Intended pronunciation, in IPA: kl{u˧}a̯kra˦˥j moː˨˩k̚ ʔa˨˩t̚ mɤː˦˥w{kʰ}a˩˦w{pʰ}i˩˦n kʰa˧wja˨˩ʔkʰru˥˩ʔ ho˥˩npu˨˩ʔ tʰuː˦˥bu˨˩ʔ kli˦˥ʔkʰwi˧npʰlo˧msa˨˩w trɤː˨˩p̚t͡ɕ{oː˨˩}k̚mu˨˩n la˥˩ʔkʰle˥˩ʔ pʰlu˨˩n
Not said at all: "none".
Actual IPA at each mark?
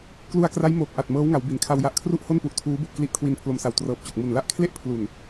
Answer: u˧, ŋ, b, o˨˩

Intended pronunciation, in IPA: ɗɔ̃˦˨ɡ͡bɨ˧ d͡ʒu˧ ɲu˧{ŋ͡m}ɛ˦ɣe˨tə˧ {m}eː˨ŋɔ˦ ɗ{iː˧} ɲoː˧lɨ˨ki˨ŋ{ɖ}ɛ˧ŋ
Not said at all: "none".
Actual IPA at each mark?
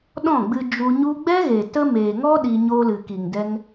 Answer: ɡ͡b, m, i˧, d

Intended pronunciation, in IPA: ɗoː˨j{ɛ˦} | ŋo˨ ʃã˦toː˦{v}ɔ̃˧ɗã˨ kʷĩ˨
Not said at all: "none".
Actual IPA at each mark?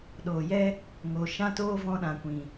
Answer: ɛ˦, v

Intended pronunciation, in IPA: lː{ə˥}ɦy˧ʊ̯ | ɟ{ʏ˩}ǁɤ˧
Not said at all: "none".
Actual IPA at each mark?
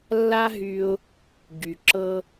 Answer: a˥, y˩

